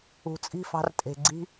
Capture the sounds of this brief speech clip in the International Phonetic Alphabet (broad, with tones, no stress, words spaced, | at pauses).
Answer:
ṳ˨t͡sʼi̤˦˨fɑ̤˧rtʼe̤˨ ɡ͡ǀi̤˧